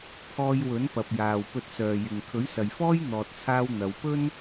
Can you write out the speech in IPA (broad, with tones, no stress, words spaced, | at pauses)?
t̪ʰɔː˧j wɵ˨˥npɐ˨p̚jaː˨w pɵ˧t̚sœː˨jɪ˨ŋ kʰɵ˨˥ɥsɐ˨jfɔː˥j n̪ɔː˨t̚t͡sʰaː˧w n̪ɐ˨˧wpɵ˥n